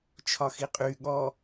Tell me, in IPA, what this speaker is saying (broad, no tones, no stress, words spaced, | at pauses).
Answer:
t͡ʃʰɒxiqʼy ɠɔ